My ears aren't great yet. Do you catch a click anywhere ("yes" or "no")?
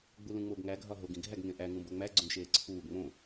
yes